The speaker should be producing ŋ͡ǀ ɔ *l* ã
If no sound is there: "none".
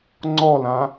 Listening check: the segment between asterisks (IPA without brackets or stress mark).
l